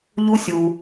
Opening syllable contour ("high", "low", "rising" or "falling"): high